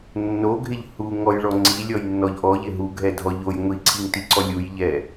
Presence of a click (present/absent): present